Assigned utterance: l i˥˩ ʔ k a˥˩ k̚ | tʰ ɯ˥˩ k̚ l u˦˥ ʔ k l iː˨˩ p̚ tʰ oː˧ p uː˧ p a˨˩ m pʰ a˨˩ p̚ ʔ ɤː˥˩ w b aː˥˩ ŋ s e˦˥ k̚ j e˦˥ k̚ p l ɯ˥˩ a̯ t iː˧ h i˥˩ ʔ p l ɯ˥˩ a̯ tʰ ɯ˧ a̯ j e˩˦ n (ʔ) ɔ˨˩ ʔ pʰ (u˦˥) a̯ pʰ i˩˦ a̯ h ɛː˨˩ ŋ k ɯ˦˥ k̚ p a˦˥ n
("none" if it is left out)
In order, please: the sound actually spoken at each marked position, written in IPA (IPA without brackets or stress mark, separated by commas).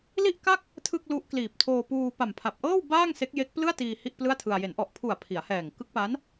ʔ, u˨˩